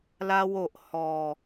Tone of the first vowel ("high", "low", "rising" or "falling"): high